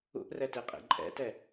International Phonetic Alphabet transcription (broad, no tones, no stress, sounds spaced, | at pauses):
ṵ ʔ r ɛ t e qʼ ḛ ǃʼ ɛ̰ t ɛ